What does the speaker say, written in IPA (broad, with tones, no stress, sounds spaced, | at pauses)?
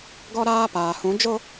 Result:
ɡ ɔ˦ ɾ aː˦ p aː˨ h ũ˨˦ d͡ʒ o˦